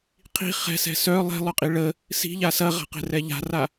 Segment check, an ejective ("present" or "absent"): present